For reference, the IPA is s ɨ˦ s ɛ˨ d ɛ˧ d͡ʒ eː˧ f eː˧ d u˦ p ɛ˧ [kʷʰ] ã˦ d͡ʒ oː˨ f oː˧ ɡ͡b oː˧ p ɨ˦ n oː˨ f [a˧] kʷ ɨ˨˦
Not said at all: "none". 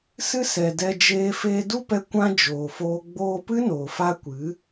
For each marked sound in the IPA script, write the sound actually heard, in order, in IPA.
kʷ, a˧

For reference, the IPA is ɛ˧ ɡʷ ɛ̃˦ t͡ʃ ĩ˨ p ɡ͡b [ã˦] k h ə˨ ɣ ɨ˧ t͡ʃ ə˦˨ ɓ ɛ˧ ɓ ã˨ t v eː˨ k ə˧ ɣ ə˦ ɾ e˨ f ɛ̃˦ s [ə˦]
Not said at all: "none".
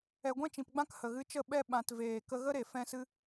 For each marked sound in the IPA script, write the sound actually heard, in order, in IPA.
ã˦, ɨ˦

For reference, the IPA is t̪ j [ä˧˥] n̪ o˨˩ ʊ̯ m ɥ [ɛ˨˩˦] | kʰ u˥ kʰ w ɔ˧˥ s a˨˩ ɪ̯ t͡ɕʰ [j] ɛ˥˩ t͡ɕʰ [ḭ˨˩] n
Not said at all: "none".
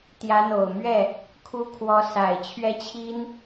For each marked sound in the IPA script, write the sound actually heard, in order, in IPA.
ä˧˥, ɛ˥˩, ɥ, i˥

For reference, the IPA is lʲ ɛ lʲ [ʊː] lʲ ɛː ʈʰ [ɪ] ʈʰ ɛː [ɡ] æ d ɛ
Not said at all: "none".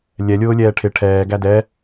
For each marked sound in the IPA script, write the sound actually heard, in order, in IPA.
ʊː, ɪ, ɡ

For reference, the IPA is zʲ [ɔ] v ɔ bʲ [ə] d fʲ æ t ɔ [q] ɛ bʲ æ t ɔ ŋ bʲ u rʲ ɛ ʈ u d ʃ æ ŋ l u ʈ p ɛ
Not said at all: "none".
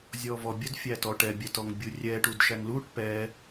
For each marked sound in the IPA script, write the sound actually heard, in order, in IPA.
ɔ, ə, ʈ

